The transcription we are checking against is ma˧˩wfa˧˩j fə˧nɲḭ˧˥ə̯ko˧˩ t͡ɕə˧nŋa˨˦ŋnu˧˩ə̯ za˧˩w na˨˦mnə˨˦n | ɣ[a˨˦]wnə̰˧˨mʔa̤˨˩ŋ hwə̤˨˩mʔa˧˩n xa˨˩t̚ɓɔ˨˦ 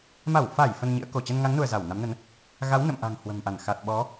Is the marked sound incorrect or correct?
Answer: correct